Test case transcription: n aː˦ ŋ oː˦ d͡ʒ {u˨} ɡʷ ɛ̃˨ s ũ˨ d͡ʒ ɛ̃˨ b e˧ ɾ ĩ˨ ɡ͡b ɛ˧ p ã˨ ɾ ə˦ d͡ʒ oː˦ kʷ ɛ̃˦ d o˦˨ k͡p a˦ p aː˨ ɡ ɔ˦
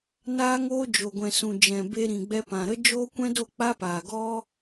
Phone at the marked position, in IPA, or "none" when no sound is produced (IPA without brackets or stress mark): o˨